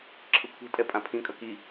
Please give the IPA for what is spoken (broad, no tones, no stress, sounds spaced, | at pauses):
ǁʰ ɯ kʷʰ ɛ̤ tʼ ɛ pʼ ã pʰ ĩ kʼ ʌ k i